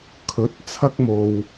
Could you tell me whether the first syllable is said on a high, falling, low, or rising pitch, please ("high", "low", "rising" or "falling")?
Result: rising